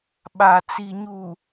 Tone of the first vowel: low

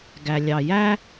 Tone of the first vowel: low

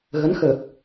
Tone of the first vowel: rising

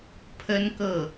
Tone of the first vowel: high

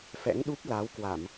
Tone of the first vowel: rising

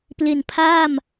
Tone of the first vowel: low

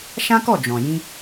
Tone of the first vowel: high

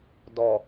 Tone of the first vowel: low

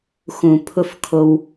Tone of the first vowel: low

